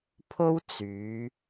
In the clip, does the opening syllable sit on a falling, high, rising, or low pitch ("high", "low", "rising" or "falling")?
high